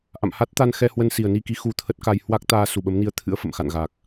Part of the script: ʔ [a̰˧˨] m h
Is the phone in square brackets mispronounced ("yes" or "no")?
no